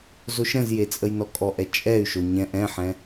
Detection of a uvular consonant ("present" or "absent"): absent